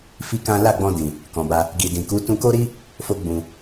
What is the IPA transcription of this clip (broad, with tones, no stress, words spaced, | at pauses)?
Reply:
fi˦kã˦ la˦˨ɡ͡bɔ̃˧dĩ˨ | kɔ̃˨ba˧ | ɡi˨dĩ˨ku˨˦ tũ˧ko˦ɾi˦ | fo˦ɡ͡bũ˧